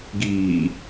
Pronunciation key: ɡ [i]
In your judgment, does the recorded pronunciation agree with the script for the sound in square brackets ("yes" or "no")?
no